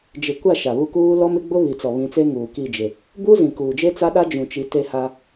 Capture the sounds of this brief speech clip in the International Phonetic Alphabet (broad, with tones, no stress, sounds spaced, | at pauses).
d͡ʒ ɪ˨ kʷ a˦˨ ʃ a˨ β u˦ k uː˦ l ɔ˦ m ɪ˦ ɡ͡b ʊ˦ β i˨ t͡s ɔ˨ β ĩ˨˦ t͡s e˦ ŋ uː˨ k i˦˨ d͡ʒ ɪ˨ | b uː˦ z ĩ˨ k uː˨ d͡ʒ e˦ t͡s a˦ ɗ a˦ d͡ʒ ũ˨ t͡ʃ i˨˦ t e˦ h a˦